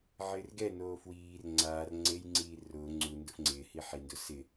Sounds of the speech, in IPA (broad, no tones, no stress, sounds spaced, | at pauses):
ʕ ɪː r ɡ ɛ n oː f w iː r ŋ͡ǀ aː r ŋ͡ǀ e j ŋ͡ǀ iː r ʊː ŋ͡ǀ u n d ʊ f ŋ͡ǀ ɪː h i ħ i n d ʊ s ɪ